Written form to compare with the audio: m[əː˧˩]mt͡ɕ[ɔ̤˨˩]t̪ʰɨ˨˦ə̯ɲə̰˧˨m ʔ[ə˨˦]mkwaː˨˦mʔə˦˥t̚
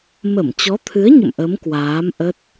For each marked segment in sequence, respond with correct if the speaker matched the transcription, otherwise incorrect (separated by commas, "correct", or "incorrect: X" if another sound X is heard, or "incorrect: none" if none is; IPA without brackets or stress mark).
incorrect: ə˧˩, incorrect: ɔ˨˦, correct